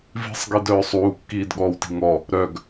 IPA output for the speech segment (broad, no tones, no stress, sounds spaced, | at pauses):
v i̤ sˤ ɡ i d œː sˤ uː kː iː d ɠ ɔː w t i̤ ŋ ɔ | ɾ œ ɡ